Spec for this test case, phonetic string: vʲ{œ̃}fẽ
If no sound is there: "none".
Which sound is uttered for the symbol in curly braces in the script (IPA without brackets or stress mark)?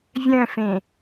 œ̃